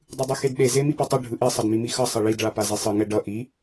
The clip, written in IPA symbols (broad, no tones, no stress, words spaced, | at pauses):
dˤɯdˤɯxedɗe zemipʌtˤʌ ɖʱɯʔi sˤʌdmimixʌ sˤʌɭid ɭapazesˤɯ ŋɛɖʌ ʔi